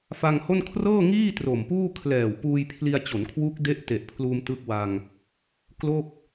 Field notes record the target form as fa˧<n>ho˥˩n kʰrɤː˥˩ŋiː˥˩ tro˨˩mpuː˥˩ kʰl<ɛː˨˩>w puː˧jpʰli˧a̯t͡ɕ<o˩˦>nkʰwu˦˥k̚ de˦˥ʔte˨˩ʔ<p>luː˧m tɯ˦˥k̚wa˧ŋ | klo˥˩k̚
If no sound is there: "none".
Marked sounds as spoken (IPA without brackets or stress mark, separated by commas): ŋ, ɛː˨˩, o˩˦, pʰ